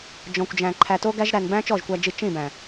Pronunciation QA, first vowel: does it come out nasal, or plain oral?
nasal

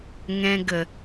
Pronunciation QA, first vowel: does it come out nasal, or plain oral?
nasal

